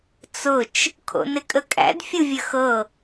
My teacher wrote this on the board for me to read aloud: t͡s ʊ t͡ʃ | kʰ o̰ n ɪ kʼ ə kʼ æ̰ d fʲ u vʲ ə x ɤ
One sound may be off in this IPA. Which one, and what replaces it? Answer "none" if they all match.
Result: none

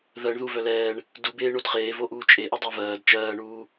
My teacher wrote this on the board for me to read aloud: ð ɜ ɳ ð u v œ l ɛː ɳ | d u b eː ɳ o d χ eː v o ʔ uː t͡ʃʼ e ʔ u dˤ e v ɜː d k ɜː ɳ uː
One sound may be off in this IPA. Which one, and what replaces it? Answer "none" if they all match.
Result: k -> t͡ʃ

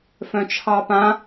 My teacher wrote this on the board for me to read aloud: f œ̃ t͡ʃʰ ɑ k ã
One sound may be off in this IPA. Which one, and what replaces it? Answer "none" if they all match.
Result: k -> p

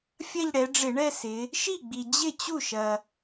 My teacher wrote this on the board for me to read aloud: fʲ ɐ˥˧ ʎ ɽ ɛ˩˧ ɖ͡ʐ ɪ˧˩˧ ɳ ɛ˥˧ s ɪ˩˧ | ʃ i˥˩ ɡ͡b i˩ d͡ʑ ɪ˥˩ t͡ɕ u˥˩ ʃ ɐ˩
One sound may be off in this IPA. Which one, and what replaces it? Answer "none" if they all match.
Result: none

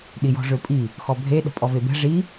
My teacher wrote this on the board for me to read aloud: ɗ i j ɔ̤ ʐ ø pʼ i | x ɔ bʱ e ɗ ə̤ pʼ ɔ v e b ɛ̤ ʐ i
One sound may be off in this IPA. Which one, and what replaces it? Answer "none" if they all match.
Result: none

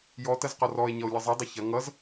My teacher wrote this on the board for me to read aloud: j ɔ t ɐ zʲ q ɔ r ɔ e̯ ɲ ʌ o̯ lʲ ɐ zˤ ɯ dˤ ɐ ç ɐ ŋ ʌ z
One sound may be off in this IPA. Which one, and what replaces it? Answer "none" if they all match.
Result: zʲ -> z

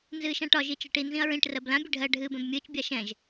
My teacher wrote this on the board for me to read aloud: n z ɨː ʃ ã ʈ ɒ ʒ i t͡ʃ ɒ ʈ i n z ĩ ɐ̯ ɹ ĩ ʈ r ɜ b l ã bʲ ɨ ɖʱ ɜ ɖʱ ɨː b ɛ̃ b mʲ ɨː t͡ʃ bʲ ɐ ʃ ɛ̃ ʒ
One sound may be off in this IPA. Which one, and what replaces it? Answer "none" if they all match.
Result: ɐ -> a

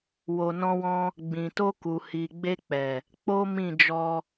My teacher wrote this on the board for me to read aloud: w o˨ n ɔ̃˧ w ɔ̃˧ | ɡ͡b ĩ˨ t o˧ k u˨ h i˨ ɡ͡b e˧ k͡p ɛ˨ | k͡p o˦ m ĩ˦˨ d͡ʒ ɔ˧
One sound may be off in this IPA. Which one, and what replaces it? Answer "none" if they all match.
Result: none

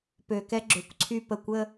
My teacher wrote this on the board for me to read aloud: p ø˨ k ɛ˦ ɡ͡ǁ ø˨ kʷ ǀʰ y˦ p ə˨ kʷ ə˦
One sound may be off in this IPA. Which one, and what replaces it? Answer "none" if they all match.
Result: none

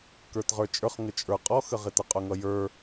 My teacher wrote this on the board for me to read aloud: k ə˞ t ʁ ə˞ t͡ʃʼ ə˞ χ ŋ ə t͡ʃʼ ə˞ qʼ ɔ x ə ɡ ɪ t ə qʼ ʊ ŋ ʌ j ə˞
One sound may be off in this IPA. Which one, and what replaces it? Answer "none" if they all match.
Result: ɡ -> ʁ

